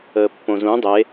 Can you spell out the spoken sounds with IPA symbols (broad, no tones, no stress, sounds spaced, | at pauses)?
əː pː õ z ũ dˤ e